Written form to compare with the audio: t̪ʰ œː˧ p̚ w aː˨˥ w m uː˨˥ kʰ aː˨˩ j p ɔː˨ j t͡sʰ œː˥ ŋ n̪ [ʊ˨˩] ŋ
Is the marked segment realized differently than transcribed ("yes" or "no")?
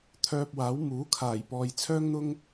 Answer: yes